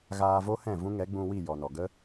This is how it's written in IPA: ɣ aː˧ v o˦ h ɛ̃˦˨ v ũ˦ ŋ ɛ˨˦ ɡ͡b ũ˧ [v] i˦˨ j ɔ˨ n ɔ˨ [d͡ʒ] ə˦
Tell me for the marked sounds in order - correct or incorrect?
incorrect: w, incorrect: ɡ

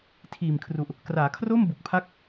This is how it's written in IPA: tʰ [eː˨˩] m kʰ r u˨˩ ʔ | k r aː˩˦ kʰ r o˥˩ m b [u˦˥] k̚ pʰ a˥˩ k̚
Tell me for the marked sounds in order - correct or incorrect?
incorrect: iː˨˩, incorrect: u˨˩

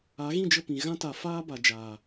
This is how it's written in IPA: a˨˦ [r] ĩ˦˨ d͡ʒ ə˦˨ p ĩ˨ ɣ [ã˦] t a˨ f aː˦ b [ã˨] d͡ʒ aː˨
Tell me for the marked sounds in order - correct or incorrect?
incorrect: ɣ, correct, incorrect: a˨

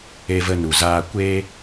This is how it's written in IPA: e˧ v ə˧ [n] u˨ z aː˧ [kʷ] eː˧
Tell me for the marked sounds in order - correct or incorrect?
correct, correct

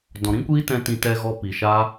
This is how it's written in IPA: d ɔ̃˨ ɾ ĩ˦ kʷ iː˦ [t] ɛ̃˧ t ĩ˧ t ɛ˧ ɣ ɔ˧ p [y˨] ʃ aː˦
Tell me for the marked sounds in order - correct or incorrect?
correct, incorrect: i˨

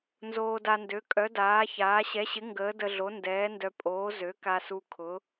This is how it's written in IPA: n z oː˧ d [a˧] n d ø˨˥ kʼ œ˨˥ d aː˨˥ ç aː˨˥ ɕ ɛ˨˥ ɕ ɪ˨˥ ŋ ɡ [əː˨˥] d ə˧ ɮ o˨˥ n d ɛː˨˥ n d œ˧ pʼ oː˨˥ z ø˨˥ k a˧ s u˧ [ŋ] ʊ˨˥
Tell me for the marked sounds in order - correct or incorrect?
correct, correct, incorrect: kʰ

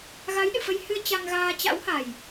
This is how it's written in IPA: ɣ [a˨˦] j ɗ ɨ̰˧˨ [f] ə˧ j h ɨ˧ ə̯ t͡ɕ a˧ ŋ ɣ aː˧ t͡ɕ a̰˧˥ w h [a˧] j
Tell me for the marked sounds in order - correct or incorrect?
correct, correct, incorrect: a˨˩

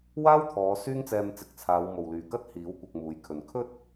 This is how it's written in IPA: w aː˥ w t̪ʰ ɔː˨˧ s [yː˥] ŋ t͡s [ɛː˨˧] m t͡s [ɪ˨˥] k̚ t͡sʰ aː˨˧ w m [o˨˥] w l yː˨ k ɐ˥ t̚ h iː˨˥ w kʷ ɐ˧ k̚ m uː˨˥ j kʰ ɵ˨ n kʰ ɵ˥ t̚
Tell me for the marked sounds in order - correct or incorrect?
correct, incorrect: ɛː˧, incorrect: ɪ˨, incorrect: o˨

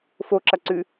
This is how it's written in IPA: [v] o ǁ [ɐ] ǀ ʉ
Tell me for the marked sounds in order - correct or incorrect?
incorrect: f, correct

